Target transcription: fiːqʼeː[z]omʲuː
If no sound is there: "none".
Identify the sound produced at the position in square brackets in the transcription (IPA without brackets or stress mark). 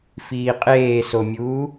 s